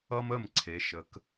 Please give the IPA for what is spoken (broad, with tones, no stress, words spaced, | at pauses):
ʌ˦mə˦˨m ǀʰe˨˦ ʃə˨˦k